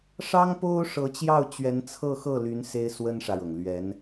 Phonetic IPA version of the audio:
ʂɑ˥ŋpo˥ʊ̯ ʂɤ˧˥t͡ɕjɑ˥˩ʊ̯t͡ɕɥɛ˧˥n t͡sʰɤ˥˧xɤ˥˩ly˧˥n se˥ɪ̯swə˥nʂä˨ɻɤ˩ŋ lɥɛ˧˥n

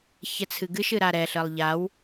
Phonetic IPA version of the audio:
çɛt͡sʰɨɡɨʃ ɨɾaɾɛ ɬəlˠʎaw

